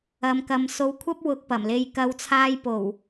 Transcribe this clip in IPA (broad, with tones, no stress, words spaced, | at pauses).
ɐ˨mkɐ˨m so˨˧wkʷʰɐ˥p̚ wʊ˧k̚pɐ˨˩mle˧j kɐ˨˧wt͡sʰaː˧jpo˨˩w